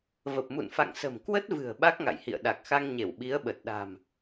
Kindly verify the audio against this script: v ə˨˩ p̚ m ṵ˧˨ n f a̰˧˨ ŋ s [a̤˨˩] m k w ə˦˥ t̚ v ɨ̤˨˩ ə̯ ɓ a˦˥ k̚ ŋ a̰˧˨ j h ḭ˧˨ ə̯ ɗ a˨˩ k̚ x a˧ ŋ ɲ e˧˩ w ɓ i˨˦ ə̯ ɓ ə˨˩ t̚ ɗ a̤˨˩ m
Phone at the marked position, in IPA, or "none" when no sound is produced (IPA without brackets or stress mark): ə̤˨˩